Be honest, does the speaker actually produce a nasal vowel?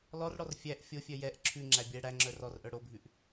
no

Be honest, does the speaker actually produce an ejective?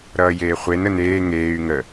no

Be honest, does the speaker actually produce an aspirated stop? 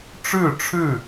yes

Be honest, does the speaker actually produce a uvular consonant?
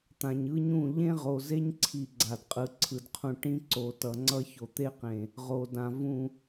yes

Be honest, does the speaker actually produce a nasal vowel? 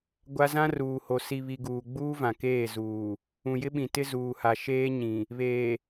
yes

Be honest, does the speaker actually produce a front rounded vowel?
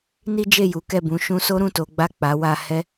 no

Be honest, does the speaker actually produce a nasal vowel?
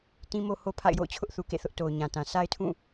yes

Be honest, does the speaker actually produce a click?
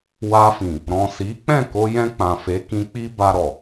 no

